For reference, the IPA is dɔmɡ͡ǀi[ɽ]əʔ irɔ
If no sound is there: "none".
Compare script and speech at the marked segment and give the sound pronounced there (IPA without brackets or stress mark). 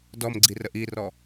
r